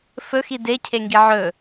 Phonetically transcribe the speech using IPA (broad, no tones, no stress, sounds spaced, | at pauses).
f ɵ x i d e cʰ e ŋ ɡ i ʕ ɵ